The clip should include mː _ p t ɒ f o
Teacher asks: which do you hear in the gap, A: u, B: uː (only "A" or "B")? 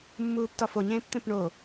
B